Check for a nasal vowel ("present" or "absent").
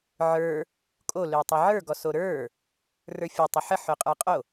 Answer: absent